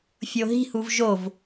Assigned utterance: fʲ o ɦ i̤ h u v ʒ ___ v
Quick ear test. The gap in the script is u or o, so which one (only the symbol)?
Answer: o